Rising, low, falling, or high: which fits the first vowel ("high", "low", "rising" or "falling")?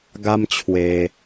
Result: high